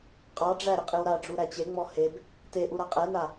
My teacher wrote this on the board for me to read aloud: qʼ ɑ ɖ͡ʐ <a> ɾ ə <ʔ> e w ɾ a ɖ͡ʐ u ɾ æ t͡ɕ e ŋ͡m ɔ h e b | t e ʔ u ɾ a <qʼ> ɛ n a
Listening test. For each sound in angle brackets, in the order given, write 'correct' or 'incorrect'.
incorrect: æ, incorrect: qʼ, correct

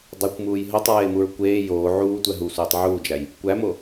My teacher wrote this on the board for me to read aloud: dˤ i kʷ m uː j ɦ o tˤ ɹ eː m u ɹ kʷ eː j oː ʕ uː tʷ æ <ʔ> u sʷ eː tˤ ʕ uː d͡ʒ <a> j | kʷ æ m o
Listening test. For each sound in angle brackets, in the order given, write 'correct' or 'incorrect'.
incorrect: ɦ, incorrect: æ

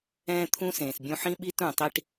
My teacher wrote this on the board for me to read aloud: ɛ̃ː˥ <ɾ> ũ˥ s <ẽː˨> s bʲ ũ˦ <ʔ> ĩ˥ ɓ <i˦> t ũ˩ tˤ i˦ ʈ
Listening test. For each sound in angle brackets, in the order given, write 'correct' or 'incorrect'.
incorrect: t̪ʰ, correct, incorrect: ħ, correct

